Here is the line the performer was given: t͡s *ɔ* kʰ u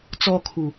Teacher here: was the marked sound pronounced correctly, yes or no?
yes